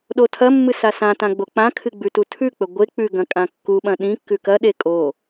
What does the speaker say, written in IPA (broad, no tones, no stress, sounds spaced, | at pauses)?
ɗ o tʰ ɐ mː ɨ s a s ã t ã ɡ͡b o k͡p ã kʰ ɨ ɡ͡b ʉ t u tʰ ʉ k͡p ɵ ɡʷ e k͡p ʉ ɡ ɐ̃ kʼ ã kː u ɓ ɐ̃ ɗ ĩ kː ʉ k ɐ ɗ e kʼ o